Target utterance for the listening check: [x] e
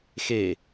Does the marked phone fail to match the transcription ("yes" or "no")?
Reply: no